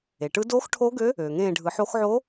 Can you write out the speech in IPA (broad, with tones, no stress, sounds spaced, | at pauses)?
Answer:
e˩ ʈ ɯ˧˥ d oː˧˥ x ʈʰ oː˧˥ ɡ ø˧˥ | øː˩ ŋ ẽː˦˨ ɖʱ ɯ˨˩˦ ħ o˧˥ x ʕ o˧˥